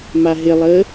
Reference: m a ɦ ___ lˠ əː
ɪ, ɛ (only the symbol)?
ɪ